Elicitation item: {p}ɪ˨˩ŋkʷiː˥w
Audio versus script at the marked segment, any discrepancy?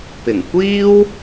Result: no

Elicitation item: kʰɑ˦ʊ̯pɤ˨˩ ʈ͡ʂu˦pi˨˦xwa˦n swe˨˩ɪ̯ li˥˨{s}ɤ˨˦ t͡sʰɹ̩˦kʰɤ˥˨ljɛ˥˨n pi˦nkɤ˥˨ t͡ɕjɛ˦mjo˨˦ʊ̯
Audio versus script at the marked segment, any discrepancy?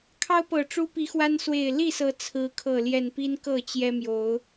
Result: no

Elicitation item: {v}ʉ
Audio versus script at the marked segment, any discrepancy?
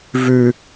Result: no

